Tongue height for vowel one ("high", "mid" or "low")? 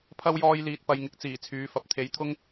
low